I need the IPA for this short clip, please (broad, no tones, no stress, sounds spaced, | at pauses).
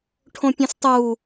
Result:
ʈʰ õ pʲ õ s tˤ u